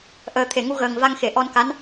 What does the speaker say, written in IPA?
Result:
ʔ əː˨˩ t̪ʰ e˨˩˨ ŋ u˧ ɣ əː˨˩ ŋ v a˧ ŋ x e˨˩˨ ʔ ɔ˧ n k a˧˥ n

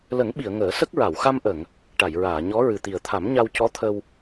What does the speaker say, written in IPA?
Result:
l ə˨˩˦ ŋ ɓ i˨˩˨ ə̯ ŋ əː˨˩˦ s ə˦˥ k̚ ɹ a˨˩˨ w x a˧ m ʔ ə˨˩˨ ŋ | ʈ a˨˩˨ j ɹ aː˨˩˨ ɲ ɔ˧˥ ɹ ɨ˨˩ t̪ i˨˩ ə̯ t̪ʰ a˨˩˦ m ɲ a˧ w c ɔ˧˥ t̪ʰ ə˧ w

